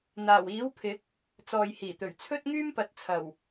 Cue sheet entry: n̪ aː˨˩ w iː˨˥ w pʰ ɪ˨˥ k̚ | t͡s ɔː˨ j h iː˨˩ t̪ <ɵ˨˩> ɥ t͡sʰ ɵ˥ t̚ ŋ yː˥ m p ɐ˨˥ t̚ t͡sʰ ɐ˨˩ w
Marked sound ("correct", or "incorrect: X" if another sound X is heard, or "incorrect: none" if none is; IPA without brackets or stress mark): correct